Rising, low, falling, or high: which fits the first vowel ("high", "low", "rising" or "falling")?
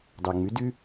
low